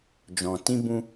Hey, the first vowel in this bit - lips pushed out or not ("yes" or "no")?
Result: yes